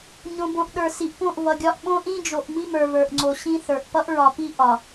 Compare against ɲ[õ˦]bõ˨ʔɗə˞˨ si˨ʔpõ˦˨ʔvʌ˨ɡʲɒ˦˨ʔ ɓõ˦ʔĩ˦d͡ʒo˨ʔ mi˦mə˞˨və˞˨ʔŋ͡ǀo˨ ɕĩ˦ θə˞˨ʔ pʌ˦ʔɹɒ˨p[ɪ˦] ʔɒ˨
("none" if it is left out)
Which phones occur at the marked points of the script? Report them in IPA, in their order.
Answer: õ˨, i˦

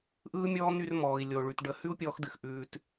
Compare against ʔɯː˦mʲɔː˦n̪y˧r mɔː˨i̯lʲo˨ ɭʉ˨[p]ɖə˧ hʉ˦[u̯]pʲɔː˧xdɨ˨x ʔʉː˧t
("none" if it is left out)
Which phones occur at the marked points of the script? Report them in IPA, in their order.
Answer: t, u̯

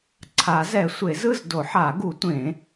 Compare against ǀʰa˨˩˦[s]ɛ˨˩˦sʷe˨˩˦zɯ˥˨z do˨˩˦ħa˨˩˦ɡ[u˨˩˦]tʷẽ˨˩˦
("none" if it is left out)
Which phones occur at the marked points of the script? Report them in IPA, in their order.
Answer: z, u˨˩˦

